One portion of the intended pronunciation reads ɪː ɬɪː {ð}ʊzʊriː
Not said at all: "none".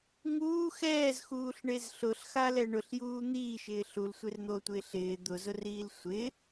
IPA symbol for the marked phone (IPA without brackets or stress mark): d̪